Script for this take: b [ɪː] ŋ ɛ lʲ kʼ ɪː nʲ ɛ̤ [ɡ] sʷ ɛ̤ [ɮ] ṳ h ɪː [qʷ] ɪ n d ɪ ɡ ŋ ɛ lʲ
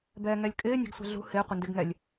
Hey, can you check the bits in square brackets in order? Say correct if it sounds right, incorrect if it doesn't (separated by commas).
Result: incorrect, correct, correct, correct